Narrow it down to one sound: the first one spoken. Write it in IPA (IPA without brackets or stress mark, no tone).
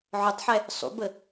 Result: ʕ